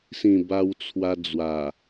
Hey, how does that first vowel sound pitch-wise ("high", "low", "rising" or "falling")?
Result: low